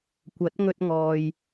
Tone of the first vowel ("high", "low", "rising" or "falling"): rising